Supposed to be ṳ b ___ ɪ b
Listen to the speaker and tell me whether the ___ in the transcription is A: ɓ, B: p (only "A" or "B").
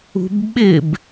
A